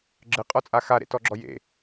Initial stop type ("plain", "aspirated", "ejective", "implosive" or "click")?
click